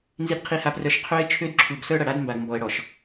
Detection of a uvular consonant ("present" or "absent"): present